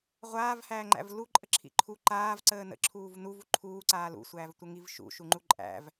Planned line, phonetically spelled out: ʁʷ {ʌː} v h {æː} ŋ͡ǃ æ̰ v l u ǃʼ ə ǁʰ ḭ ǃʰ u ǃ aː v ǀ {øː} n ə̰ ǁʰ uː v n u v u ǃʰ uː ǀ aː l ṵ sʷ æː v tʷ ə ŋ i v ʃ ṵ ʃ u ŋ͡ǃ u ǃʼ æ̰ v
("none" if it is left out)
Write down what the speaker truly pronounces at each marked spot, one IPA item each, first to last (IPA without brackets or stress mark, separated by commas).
aː, æː, əː